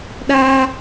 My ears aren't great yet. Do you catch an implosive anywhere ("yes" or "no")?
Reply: yes